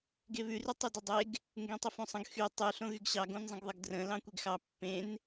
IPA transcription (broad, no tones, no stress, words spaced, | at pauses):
ɡeβʉ rytˤydodˤeɡ | ŋɡẽtˤəfõsˤə̃ɡ xy tˤy ɬõɣyɡɕɑ ɡõnzˤə̃ɡðˤəɡdrə̃ lɑ̃kʷeɡxɑ pːẽn